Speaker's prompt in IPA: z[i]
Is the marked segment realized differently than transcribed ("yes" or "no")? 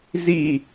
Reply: no